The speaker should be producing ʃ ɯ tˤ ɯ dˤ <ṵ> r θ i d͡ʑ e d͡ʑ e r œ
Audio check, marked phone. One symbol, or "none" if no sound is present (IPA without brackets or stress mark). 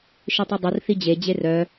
u